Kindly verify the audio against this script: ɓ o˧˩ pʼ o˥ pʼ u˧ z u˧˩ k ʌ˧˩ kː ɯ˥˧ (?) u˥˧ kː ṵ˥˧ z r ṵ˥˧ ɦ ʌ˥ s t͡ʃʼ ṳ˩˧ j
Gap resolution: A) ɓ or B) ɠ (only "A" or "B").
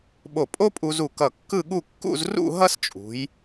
B